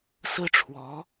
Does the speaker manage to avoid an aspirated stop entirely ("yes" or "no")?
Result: no